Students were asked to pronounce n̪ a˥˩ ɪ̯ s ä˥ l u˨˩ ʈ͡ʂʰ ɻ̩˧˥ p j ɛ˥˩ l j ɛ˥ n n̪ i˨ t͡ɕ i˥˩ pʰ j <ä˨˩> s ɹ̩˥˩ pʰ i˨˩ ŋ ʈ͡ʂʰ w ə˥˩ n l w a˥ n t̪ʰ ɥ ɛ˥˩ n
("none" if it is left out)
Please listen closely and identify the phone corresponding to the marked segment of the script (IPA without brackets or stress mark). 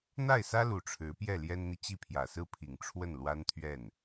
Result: ä˨˩